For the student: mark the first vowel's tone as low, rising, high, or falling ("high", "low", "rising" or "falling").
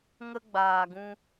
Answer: high